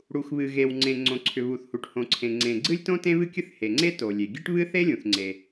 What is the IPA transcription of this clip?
ɽ u˩ x β ɨ˩ ɣ e˩ w ŋ͡ǀ ẽ˩ ŋ͡ǀ õ˩ ǀʰ ʏ˩ β u˩ θ h u˩ ʈ h õ˩ ǀʰ ẽ˩ ŋ͡ǀ ẽ˩ ɡ͡ǀ ɨ˥ lʲ t õ˥ t ẽ˥ β ɨ˥ kʲ ɨ˥ θ h e˩ ŋ͡ǀ e˥ t o˩ lʲ e˩ ɡʲ e˥ ʈ β ɨ˥ θ e˥ lʲ ũ˩ θ ŋ͡ǀ e˩

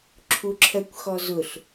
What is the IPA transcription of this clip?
ǁʰ u ǁʰ ɜ kʷ x ɔ z ʊ ɬ

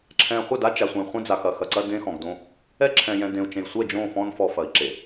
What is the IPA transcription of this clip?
ǁʰ ɛ̃˨ χʷ ə˦˨ d a˦ t͡ʃ a˨ sʷ ẽ˨ χʷ ẽ˦ d͡z a˨ x ɐ˦˨ x ɐ˨ ǀ ɐ˦ d ẽ˦ x ɔ̃˨ ɡ d õ˦ | ɛ˦ ǁʰ ɛ̃˨ j ɛ̃˨ d ẽ˨ u̯ t͡ʃ ẽ˨ j sʷ ɛ˦˨ d͡ʒ õ˦˨ f ɔ̃˦ n f ɔ˨ f ɐ˨ i̯ ǁ e˨

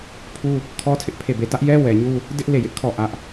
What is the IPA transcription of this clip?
pʰ u˦ | kʰ ɔ˦ tʰ ɪ˦ ʔ pʰ e˦˨ b e˦˨ t ä˦ ʔ j ɛ˦ w ɛ˨ ɲ u˦ | d ɪ˦ ʔ l e˦˨ j ɪ˦ ʔ kʰ ɔ˦˨ ʔ ä˦ ʔ

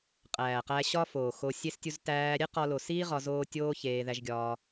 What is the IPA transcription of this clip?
qʼ æː˨ q æ˧ ɕ ɒ˦ f oː˨ x o˧ sʲ e˧ s tʲ u˧ z t æː˧ ɾʲ e˦ q ɒ˧ l o˧ s iː˦ ʁ ɒ˧ z oː˦ tʲ oː˦ ç eː˧ ð æ˧ ʒ ɡʲ ɒː˧

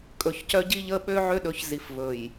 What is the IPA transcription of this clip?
kʼ ɵ˨ ç c œ˦ ɟ i˦ ʎ ə˦ ɓ ø˦ ʕ ø˦ ɗ ɵ˨˦ ç z i˨ f v ɵ˨ j

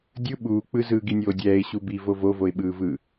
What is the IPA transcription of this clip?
dʲ ɯ ɓ uː k͡p ɯ z ɯː ɡ i nʲ oː dʲ ɛː ɪ̯ ɕ u b i v o v o v o ɪ̯ ɓ ɯː v ɯ

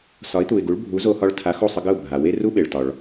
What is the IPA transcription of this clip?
s ɒ˩˥ ɪ̯ t̪ u˩ ɪ̯ ɡ u˩˥ ɭ bʱ u˩˥ z o˧ h ɒ˧ ɭ tʰ a˩˥ x o˥˩ sˤ ə˧ ɡ ə˥˩ ʊ̯ bʱ a˩ w e˥ r u˥ ɓ e˩ ɭ t ɒ˩ ɭ

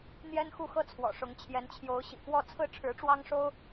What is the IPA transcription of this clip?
n̪ j ɛ˥ n x u˥˧ x ɤ˥˩ t͡sʰ w ɔ̰˨˩ ʂ ʊ˧˥ ŋ t͡ɕʰ j ɛ˧˥ n t͡ɕʰ j o˧˥ ʊ̯ ɕ ḭ˨˩ k w ɔ˥˧ t͡sʰ ɹ̩˥˩ ʈ͡ʂʰ ɻ̩˧˥ ʈ͡ʂ w ɑ˥ ŋ ʂ o˥ ʊ̯

